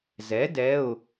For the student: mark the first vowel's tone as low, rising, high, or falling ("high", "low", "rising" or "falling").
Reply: rising